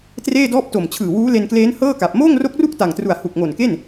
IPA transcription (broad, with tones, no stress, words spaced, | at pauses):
treː˥˩dɔː˥˩p̚to˨˩m t͡ɕʰɯː˨˩wuː˦˥le˧nkleː˦˥n hɤː˥˩ka˨˩p̚ moː˥˩ŋro˦˥k̚ru˥˩k̚ ta˨˩ŋtru˨˩a̯ hu˨˩k̚ŋo˨˩nke˥˩n